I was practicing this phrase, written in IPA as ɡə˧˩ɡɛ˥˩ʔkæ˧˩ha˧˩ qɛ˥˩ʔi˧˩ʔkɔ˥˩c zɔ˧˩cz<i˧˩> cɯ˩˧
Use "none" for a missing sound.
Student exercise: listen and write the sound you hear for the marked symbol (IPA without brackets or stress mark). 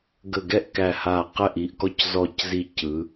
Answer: i˧˩